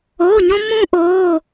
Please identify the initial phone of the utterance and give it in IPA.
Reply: o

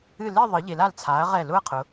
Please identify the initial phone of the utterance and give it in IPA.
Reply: ɨ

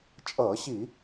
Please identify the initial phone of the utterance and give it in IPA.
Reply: t͡ʃʼ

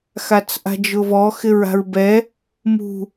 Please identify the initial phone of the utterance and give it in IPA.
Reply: x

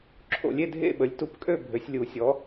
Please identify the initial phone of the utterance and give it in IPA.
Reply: ǁʰ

